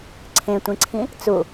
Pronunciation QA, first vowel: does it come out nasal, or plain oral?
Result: nasal